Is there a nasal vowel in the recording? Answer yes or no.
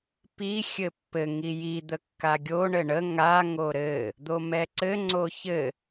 no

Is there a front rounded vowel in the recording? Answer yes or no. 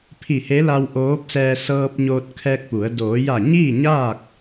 no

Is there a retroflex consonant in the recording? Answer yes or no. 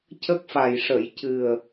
yes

